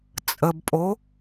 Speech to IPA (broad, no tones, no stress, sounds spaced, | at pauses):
t͡sʼ ə b pʼ o